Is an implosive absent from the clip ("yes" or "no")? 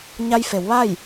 yes